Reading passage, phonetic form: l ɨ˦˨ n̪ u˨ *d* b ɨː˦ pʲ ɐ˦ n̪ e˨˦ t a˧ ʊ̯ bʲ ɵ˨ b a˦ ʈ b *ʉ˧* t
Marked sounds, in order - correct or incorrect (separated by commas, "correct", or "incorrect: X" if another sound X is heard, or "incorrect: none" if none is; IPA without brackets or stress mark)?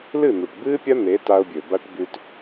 incorrect: ʈ, correct